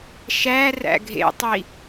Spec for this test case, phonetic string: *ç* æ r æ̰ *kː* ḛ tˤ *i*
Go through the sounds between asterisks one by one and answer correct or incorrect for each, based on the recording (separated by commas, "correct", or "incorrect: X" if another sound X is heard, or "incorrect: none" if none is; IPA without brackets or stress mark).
incorrect: ʃ, incorrect: ɡʱ, correct